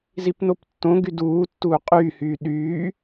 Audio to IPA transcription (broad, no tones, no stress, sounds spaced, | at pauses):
z i p n o p tː õ ɡ y d uː tː uː qʼ yː h yː ɗ yː